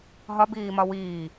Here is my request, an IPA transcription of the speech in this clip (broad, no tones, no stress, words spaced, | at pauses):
ɦɒbiːmɒ wiː